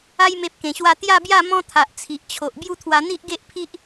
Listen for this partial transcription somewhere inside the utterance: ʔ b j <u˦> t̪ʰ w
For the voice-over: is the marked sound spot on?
yes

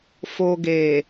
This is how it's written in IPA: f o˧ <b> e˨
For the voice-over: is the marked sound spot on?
no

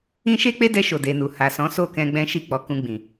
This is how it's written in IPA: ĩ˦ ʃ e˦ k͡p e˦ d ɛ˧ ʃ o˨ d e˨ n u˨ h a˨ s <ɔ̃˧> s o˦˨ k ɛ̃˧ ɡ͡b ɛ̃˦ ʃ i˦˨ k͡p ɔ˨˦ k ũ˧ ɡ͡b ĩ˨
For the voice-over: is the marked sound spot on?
no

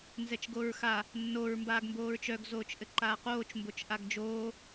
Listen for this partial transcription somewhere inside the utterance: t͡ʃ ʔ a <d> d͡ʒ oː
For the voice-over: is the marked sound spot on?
no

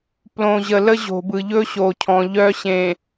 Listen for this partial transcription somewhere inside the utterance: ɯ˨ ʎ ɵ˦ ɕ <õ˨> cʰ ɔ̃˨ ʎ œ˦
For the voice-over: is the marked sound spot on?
no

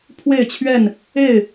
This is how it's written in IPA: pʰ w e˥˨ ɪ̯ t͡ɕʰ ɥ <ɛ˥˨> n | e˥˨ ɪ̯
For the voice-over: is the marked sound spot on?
yes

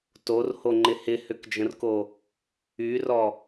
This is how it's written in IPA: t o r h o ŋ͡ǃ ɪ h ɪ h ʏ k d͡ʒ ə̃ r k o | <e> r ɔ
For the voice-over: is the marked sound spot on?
no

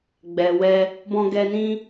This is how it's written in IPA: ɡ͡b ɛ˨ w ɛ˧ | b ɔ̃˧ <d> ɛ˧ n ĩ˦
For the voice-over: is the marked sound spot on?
no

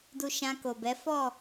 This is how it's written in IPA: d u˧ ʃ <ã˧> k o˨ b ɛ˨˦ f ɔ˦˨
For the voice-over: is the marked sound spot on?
yes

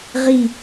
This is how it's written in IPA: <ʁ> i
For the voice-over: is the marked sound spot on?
yes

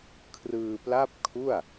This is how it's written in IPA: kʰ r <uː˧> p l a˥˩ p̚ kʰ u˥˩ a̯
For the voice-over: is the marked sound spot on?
no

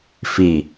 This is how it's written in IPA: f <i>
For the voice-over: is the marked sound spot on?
yes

